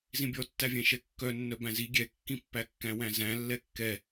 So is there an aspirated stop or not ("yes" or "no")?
no